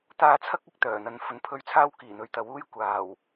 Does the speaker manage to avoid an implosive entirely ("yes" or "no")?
yes